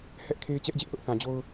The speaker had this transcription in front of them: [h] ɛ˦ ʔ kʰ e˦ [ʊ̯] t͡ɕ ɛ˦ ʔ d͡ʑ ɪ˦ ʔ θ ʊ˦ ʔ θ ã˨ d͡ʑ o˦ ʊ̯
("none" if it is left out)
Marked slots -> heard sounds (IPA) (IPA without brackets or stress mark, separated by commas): h, ɪ̯